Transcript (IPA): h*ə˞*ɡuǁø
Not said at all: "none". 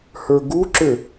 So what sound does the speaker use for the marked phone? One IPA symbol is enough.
ə˞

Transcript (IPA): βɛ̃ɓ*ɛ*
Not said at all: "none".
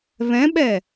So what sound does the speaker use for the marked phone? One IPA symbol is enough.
ɛ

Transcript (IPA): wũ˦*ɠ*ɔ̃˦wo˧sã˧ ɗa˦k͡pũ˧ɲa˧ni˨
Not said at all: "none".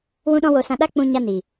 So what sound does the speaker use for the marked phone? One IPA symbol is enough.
ɗ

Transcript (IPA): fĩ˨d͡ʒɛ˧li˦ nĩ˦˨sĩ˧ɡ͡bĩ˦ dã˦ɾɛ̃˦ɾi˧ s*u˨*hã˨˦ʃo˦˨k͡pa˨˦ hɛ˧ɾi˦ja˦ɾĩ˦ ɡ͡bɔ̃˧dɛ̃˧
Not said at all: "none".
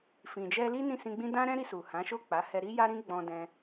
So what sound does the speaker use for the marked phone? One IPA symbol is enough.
u˨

